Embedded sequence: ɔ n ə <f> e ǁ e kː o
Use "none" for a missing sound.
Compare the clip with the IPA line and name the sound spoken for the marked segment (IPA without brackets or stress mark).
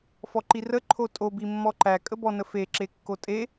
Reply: f